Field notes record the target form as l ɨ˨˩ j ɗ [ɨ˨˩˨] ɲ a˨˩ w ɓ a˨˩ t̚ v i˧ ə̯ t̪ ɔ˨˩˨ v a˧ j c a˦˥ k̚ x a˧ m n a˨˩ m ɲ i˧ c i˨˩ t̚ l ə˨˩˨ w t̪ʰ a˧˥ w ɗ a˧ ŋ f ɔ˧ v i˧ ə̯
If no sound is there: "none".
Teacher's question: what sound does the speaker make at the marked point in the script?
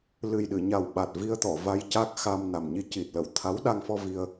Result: ɨ˨˩˨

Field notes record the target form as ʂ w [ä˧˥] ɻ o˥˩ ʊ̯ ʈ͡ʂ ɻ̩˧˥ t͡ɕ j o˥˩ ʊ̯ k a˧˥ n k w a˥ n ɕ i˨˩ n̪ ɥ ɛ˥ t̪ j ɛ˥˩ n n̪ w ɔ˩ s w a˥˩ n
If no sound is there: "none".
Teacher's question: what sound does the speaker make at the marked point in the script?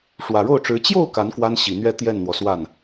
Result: ä˨˩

